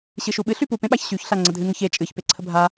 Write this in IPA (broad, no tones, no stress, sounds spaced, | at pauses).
ɕ ɨ ʃ u ɓ ɨ ɬ y p u p ẽ ɓ a ç ɕ y ç ɬ a ŋ͡ǀ ə dʱ ɨ ŋ ə ç e t͡ʃʼ ɨ ç p e ǀʰ ə bʱ a